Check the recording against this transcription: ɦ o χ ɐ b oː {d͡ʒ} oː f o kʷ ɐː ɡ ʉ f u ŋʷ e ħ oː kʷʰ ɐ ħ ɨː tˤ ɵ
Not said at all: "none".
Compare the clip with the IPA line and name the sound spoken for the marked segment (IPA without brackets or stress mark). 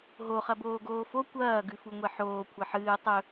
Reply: ɡ